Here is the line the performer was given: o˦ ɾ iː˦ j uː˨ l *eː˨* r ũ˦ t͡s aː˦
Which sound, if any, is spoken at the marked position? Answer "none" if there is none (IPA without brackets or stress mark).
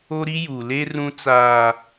eː˦